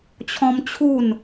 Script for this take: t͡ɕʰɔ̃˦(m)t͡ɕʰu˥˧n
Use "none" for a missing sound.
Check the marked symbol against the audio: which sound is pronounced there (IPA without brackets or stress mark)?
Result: m